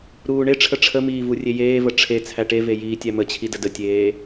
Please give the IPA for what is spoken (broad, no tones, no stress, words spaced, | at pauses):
ɾuːɳeʈ͡ʂʰə ʈ͡ʂʰəmiː vurʲejeːvə ʈ͡ʂʰe t͡sʰæʈeve jiːtʲæmət͡ɕʰi dədətʲeː